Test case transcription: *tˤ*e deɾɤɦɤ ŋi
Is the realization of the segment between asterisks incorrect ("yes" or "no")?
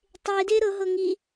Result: no